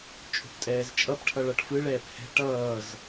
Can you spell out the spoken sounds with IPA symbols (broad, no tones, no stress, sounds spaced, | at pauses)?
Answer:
t͡ʃʼ o̤ p tʼ ɛː z t͡ʃʼ ʌ p ʈʰ ʌ ɭ ʌ ʈ f ɯ ɭ ɛː p h ɛ̤ ʈ ʌː z